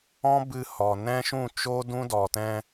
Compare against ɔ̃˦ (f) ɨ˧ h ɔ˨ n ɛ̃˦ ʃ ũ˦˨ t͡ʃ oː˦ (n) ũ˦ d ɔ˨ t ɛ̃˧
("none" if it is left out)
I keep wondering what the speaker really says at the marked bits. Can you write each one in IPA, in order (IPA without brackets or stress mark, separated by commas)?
b, d